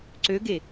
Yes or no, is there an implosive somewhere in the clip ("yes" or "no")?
no